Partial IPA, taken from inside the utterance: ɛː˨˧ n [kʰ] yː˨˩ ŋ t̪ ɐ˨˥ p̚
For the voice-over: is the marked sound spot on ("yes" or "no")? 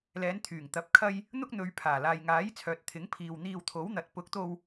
no